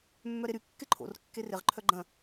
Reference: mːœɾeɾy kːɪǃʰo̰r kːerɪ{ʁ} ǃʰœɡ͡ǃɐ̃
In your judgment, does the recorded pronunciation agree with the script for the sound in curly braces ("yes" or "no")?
yes